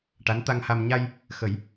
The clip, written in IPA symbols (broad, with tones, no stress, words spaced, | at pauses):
ʈa˧˥nt̪a˧ŋha˧m ɲa˧j | xə˨˩˦j